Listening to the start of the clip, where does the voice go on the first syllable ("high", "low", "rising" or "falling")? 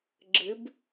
rising